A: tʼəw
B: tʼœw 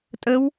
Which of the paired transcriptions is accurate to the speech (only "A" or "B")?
A